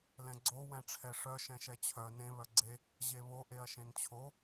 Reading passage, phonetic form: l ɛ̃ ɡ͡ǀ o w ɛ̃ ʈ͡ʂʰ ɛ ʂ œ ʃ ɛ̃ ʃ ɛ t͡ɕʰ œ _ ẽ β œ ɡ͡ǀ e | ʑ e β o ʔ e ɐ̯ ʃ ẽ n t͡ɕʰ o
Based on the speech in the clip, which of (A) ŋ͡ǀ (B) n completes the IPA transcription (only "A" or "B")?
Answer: B